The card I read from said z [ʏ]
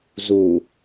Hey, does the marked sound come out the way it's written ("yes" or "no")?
no